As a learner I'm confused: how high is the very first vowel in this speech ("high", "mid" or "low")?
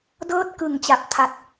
mid